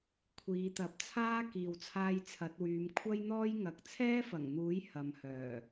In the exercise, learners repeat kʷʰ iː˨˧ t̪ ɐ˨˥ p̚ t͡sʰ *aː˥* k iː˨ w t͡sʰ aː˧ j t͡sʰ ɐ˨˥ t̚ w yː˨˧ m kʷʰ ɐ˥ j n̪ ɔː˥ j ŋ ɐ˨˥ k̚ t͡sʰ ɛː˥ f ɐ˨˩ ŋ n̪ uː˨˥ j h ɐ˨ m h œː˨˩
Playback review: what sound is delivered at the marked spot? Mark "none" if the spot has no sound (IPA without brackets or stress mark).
aː˥